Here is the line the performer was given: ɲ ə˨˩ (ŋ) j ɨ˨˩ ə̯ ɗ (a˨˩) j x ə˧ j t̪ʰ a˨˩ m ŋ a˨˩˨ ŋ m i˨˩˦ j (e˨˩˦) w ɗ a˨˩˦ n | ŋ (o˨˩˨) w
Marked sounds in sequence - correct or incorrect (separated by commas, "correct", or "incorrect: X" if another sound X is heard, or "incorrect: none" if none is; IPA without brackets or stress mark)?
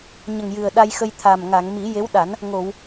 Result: correct, incorrect: a˧, incorrect: e˧˥, correct